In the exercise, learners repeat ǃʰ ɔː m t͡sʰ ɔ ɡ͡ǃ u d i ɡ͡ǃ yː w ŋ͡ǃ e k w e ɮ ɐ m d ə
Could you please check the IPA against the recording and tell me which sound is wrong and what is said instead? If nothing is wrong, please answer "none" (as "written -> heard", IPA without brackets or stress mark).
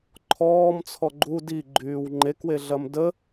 none